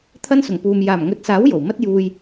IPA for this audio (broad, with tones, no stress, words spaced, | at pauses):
t̪ʰɐ˥nsʊ˨˩ŋpuː˨m jaː˨˩mŋɵ˨˥t̚saː˨˥w jo˨˩wmɐ˥t̚juː˧j